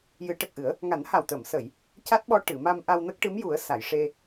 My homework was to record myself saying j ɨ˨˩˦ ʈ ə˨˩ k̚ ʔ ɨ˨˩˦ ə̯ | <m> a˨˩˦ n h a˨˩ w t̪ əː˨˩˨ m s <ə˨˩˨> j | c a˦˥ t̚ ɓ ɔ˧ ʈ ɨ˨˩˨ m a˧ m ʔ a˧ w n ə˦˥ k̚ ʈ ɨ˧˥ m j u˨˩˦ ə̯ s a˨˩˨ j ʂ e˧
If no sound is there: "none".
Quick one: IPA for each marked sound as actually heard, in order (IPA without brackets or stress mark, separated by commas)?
ŋ, ə˨˩˨